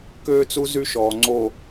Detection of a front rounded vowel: present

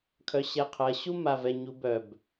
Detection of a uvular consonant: present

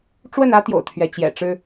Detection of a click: absent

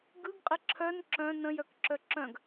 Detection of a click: present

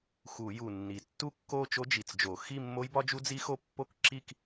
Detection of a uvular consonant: absent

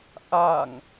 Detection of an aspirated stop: absent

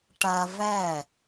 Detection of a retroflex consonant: present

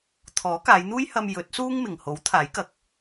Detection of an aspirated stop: present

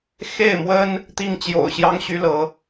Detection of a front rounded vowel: present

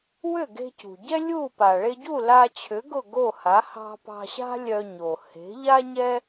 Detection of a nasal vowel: absent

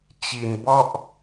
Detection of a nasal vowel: absent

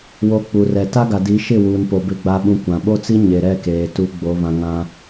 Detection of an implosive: present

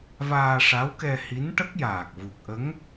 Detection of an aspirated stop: absent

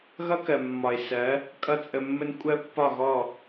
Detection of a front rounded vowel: absent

